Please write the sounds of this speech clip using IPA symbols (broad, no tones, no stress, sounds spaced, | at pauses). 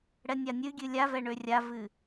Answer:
ɽ ɛ nʲ a nʲ ɨ ɡʲ ɨ lʲ a v ɛ ɳ ø rʲ a v ɨ